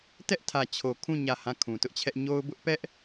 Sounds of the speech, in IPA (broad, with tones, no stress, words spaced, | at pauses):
tɛ˦ʔtʰä˨t͡ɕʰo˨kʰũ˦˨ ɲä˦˨hã˦˨ kʰũ˨tʊ˦ʔt͡ɕʰɛ˦ʔ ɲo˦ʊ̯bʊ˦ʔ pɛ˦ʔ